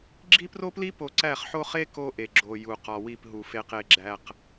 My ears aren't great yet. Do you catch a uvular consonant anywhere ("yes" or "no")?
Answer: yes